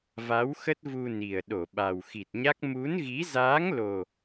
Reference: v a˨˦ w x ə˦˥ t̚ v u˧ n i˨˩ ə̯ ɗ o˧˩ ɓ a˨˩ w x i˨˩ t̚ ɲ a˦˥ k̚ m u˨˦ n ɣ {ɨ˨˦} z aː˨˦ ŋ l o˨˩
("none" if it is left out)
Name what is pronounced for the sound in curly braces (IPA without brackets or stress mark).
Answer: i˨˦